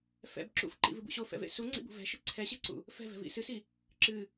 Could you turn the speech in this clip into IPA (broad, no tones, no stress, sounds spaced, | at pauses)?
f ɛ̰ b ǁ ṵ f ǃ ḭ v ɨ b ṵ ɕ o f ɛ̰ v ḛ s u ŋ͡ǀ ḭ b ṳ v ɛ̤ ʃ ɨ ǀʰ ɛ ɕ e ǀ ṵ | f ɛ̤ v ɛ̤ v ḭ s ɨ s i | ǁ ɨ